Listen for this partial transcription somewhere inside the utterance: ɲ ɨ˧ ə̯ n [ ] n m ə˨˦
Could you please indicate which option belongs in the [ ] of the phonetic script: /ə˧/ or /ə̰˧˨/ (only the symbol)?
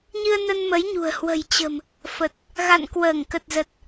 ə˧